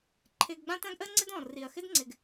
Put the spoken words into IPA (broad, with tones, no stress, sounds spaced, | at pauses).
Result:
ǃʰ ɪː˧ ɡ ɡ͡b ã˥ t ã˥ ɡ ʔ əː˥ ŋ͡ǀ ɪ˥ d ɔ̃ː˩ r i˩ ɐ̯ x ɪ˥ d ŋ͡ǀ ɪ˩ ɡ